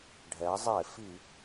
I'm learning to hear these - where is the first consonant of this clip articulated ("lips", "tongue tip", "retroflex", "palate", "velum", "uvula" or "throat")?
retroflex